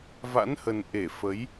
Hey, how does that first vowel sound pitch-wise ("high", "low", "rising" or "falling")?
rising